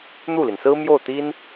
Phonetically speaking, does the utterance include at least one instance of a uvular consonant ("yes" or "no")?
no